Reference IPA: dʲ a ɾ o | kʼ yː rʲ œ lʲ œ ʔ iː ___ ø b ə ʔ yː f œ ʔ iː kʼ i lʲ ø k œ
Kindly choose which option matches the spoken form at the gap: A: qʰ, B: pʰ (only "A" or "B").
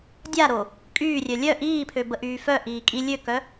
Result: B